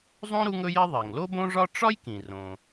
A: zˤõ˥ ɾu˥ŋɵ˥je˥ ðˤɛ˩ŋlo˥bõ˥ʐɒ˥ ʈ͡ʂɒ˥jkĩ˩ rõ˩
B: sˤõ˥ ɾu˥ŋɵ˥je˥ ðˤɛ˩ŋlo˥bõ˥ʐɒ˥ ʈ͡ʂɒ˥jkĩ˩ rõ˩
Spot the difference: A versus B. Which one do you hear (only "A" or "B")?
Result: A